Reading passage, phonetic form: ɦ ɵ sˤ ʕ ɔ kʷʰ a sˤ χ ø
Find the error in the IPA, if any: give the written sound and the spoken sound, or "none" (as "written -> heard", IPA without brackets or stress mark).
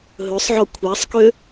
χ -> k